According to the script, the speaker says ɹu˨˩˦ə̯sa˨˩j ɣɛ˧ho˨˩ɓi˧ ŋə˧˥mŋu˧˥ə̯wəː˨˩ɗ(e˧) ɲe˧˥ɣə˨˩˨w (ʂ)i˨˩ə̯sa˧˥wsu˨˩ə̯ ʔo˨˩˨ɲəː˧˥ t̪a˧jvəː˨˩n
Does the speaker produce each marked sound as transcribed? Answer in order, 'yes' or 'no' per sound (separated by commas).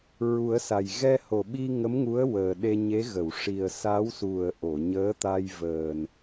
yes, yes